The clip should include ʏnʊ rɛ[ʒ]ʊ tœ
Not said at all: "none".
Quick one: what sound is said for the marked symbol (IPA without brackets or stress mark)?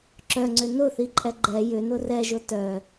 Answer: ʒ